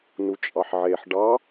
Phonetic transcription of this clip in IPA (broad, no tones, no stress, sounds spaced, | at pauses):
n u t͡ʃʼ ɑ ħ ʕ e ħ ɖ ɑ